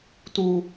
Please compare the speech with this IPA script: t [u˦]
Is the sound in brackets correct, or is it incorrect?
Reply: correct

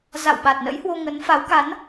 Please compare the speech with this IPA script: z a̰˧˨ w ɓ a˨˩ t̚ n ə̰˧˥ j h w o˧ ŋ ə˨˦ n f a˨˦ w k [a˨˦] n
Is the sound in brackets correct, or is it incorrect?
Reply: correct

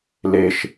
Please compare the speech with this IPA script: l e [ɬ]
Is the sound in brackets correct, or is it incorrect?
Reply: incorrect: ʃ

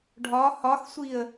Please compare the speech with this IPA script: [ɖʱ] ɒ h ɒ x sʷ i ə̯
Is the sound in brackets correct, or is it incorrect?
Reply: correct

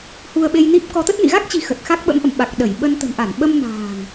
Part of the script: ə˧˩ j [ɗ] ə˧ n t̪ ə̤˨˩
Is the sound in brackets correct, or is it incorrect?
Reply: incorrect: ɓ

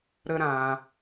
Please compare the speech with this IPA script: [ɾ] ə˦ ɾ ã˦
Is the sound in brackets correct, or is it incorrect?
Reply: correct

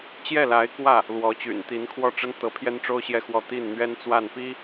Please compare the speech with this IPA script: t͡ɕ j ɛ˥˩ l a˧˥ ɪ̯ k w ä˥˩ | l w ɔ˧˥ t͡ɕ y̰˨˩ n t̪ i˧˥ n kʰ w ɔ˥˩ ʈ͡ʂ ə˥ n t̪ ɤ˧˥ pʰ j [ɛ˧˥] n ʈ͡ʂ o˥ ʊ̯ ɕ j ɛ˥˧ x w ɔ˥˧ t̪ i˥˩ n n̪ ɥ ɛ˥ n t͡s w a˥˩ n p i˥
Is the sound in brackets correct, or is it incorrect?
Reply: incorrect: ɛ˥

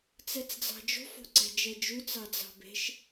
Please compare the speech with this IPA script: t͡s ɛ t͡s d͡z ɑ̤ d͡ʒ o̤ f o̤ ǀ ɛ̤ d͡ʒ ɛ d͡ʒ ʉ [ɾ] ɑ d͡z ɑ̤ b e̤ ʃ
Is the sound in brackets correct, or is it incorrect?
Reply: incorrect: t͡s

